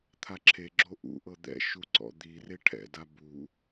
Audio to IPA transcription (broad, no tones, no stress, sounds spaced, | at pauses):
t̪ʰ a ǁʰ e ɡ͡ǁ o ʔ ṵ ʔ ɤ d̪ ɛ̰ ʃ u ǀ ɔ̰ d̪ i r e ʈʰ ɛ̰ d a b u